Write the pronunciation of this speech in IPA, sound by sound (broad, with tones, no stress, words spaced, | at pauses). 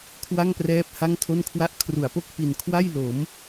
kʰwa˥˩ŋprɛː˦˥p̚ ha˥˩ŋtʰo˥˩nkʰwa˥˩ʔ kʰru˩˦a̯po˥˩k̚ pi˨˩n kʰwa˥˩jlo˩˦m